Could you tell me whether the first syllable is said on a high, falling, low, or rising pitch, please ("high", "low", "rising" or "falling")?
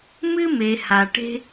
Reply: high